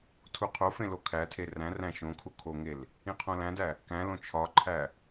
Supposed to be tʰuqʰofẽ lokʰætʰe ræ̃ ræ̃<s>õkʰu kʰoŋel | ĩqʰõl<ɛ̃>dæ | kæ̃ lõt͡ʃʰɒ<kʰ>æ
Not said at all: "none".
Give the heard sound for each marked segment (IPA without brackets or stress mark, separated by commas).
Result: ʃ, æ̃, ǃʰ